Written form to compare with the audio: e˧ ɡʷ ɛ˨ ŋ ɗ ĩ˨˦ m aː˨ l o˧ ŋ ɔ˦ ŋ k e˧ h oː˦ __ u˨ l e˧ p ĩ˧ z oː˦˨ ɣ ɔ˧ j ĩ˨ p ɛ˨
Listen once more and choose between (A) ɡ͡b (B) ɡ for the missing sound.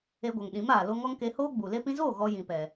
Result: A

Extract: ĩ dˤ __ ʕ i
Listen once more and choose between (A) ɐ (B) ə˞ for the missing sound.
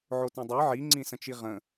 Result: B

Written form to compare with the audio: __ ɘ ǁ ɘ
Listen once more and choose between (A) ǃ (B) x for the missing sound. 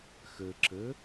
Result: B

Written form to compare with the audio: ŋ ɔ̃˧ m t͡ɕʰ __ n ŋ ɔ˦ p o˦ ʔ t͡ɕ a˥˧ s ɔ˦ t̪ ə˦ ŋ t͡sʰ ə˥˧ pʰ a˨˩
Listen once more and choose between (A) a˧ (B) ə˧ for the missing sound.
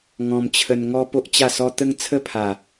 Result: B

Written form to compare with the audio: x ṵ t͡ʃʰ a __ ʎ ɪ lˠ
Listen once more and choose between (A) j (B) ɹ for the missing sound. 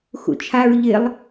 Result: B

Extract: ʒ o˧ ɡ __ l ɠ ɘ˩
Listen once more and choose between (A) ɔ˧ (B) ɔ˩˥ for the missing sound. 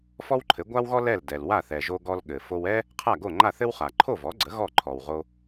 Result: A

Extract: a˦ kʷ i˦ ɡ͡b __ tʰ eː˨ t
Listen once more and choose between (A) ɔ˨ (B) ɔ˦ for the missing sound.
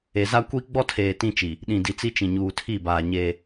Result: B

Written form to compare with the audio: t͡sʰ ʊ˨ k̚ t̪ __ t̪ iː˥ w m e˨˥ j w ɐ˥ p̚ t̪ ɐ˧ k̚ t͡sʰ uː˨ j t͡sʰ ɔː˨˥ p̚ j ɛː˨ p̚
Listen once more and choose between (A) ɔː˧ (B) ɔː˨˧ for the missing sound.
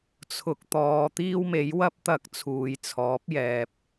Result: B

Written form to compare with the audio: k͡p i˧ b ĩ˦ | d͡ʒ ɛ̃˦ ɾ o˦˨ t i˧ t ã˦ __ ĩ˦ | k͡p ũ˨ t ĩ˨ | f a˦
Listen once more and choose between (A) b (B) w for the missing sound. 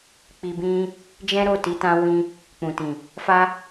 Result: B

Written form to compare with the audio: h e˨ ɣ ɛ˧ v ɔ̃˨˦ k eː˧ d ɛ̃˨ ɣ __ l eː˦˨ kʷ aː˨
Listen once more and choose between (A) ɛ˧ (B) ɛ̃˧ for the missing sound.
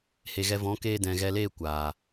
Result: A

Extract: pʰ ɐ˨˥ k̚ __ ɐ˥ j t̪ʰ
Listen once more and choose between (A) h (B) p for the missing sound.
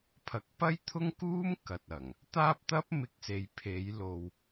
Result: B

